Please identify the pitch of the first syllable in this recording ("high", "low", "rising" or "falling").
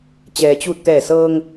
low